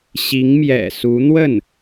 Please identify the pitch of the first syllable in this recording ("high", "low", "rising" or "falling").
rising